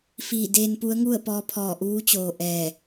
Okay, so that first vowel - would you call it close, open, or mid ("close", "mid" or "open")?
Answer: close